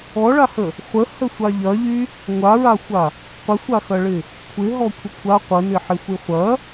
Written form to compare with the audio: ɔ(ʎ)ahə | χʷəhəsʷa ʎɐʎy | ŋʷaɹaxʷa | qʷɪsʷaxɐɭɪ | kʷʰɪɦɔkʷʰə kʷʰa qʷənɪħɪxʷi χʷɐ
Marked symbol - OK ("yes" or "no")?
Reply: no